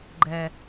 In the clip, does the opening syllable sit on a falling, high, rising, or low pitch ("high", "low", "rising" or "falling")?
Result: low